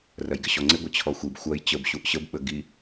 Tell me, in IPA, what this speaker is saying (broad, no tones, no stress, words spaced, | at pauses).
rɐjɡɪɕɔŋ͡ǀɪ ɡʷət͡ɕʰɔxʷib xʷɐj t͡ɕəb ɕuʔɕəb ɓəɡi